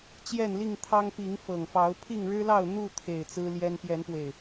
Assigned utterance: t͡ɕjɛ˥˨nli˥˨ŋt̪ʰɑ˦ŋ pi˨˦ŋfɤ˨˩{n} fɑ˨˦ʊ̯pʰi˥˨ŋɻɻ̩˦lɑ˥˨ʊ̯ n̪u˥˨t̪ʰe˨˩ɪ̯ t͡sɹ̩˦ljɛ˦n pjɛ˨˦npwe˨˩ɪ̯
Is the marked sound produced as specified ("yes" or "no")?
no